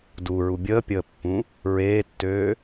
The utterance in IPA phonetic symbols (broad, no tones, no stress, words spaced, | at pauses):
duɹu bʲəːpʲəːpːũ | ɹeːtːøː